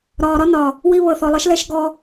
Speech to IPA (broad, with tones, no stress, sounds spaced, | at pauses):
ɾ ɒː˨ ɾ ɒ˦ n ɒ˨ | w i˧ β ɤ˨ θ ɔ˨ lˠ ɤ˦ ʃ l ɛ˦ ʃ ɡ ɔ˧